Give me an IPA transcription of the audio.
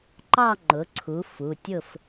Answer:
ǃ ɑ˥˨ ŋ͡ǃ ʊ˩˥ ǀʰ u˩˥ f u˩˧˩ tʲ ʊ˥˨ f

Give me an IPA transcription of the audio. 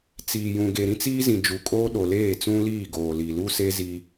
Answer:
t͡s iː˨ j ũ˨ ɡ e˨ ɾ ĩ˦ t͡s iː˦ z ĩ˨ d͡ʒ u˨ kʼ oː˦ ɗ o˨ l eː˦˨ t͡s ũ˦ l iː˦˨ ɡ oː˨ l i˨ l u˦ s e˦ z i˦

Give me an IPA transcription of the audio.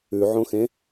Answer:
ʉ ʕ õ x ẽ

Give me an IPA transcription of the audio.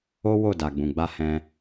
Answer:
o˦ w o˦˨ d a˨ ɡ͡b ũ˨ ɡ͡b a˧ h ɛ̃˧

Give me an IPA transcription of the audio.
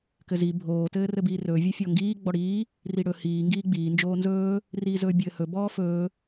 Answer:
k ɘ z i bʱ oː t ɘː r ɘ b iː r ɵː vʲ ɘ fʲ ɔ ŋ ɡ iː ɡ͡b ɔ ɽ iː | r i ɽ ɵ h iː ŋ ɡ iː ɡ͡b iː n d͡ʒ oː n z ɵː | r iː z ɵː bʲ ɘː h ɵ b ɔː f ɵː

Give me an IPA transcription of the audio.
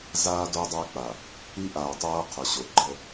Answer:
z aː˦ d o˦ dˤ a˦ k͡p a˨ | i˦ ʔ aː˨ tˤ aː˦ qʰ ʊ˨ ɕ o˨ ɡ͡ǃ ə˦

